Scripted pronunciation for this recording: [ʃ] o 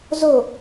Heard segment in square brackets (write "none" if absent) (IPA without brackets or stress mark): z